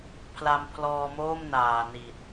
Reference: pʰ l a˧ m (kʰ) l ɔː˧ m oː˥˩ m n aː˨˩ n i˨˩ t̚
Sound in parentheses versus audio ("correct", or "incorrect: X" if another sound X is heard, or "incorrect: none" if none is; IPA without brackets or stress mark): incorrect: pʰ